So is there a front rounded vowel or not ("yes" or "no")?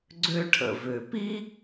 yes